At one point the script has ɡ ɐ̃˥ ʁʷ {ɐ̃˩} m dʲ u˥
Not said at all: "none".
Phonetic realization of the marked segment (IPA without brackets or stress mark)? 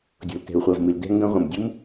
ɐ̃˩